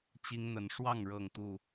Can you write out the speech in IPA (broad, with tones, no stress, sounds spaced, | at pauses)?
t͡ɕ i˦ ŋ n̪ ə˨˦ n ʂ w ɑ˥˨ ŋ ɻ ɤ˥˨ ŋ t̪ u˥˨